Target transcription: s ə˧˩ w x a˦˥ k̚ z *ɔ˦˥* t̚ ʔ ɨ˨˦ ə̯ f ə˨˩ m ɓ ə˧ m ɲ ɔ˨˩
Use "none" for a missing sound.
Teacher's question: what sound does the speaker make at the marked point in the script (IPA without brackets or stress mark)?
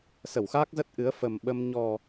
ə˦˥